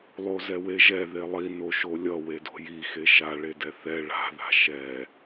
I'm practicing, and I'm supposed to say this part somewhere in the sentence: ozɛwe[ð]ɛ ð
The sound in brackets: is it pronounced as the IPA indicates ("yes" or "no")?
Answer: no